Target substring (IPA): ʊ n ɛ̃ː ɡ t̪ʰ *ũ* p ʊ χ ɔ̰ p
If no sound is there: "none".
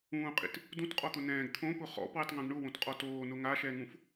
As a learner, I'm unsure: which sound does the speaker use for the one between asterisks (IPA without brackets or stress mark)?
õ